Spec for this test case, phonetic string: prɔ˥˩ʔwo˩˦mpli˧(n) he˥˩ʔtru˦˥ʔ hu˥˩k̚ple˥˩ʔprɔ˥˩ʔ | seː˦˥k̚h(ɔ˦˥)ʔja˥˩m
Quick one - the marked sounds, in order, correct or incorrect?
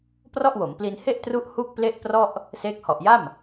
correct, incorrect

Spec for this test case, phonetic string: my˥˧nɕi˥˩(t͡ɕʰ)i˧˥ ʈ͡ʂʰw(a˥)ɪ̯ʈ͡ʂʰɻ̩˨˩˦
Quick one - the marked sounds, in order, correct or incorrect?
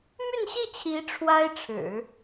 correct, correct

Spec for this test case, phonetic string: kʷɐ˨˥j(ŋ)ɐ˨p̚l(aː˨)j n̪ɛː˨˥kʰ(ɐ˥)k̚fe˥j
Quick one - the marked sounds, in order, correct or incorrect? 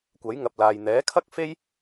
correct, correct, correct

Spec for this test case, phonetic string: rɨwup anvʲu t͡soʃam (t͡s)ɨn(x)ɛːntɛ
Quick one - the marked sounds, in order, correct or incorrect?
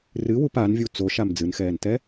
incorrect, correct

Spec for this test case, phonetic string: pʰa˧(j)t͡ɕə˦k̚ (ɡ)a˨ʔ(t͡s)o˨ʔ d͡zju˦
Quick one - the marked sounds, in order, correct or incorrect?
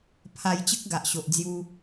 correct, correct, incorrect

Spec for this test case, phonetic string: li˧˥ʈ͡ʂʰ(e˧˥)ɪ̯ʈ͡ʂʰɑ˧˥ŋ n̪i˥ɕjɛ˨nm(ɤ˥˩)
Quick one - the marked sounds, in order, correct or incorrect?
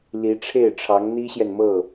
incorrect, correct

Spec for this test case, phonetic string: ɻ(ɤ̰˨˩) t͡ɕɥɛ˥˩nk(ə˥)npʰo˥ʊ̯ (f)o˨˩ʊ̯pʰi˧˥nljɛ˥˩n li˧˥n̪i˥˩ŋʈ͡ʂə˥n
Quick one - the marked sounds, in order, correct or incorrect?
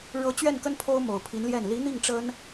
incorrect, correct, incorrect

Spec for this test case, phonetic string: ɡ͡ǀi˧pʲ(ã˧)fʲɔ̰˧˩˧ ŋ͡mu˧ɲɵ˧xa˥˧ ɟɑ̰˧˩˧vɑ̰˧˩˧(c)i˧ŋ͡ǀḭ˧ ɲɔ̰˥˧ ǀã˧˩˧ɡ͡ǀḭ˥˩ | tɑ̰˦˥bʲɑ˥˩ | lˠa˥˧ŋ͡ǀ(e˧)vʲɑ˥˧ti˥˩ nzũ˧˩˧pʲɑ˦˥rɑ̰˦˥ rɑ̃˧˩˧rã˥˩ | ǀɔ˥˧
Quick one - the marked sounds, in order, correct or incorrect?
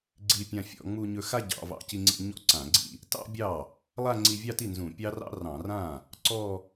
correct, correct, incorrect

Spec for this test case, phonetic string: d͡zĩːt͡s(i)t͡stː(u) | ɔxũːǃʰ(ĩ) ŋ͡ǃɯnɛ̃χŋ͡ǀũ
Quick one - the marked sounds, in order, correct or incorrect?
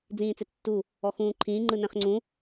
incorrect, correct, incorrect

